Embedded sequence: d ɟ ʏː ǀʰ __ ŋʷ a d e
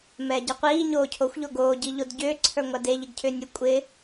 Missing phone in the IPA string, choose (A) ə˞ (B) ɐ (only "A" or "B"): A